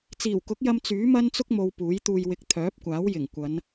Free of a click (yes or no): yes